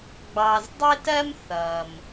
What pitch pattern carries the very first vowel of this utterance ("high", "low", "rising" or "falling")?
low